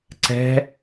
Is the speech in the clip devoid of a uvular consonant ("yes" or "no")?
yes